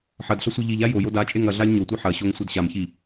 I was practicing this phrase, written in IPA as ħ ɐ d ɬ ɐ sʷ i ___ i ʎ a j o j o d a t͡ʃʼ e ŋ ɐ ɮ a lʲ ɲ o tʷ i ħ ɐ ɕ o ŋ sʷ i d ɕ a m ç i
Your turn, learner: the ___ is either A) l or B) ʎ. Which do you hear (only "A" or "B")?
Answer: B